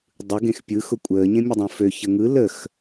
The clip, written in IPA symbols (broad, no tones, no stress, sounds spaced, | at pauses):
dˤ ɯ ɡ ẽ x pʲ ɯ x ʊ kʷʼ əː ɲ ẽ mʲ ə dˤ õ f ø ç ə ŋ ɯ l ə x